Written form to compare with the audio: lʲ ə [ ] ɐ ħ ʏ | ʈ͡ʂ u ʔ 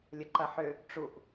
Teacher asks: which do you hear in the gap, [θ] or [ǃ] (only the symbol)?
ǃ